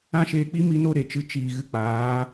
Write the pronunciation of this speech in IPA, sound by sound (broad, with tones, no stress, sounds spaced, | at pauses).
ã˦ ʃ eː˧ k͡p i˦ m i˦ n o˦ ɾ e˨ t͡ʃ ɨ˧ t͡ʃ iː˨ ɣ ɨ˧ k͡p aː˨˦